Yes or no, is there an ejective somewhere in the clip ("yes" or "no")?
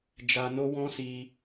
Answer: no